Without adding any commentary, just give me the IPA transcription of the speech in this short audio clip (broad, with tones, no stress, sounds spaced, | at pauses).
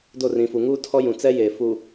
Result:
d o˦˨ r ĩ˨ f u˨ ŋ uː˦ tʰ ɔ˦ j ũ˨ t͡s ɛ˦ j eː˨ f uː˨